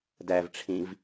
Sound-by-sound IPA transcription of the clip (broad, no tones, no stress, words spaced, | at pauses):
dævʈ͡ʂʰĩv